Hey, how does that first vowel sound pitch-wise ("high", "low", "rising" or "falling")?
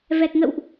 low